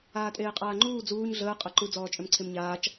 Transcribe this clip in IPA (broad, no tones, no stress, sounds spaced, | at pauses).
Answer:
aː tʼ eː qʼ aː ŋ͡ǃ uː d͡z uː ɲ ɮ əː qʼ a ǃ u d͡z ɔː t͡ʃʼ ø m ǀʰ e m ɲ aː t͡ʃ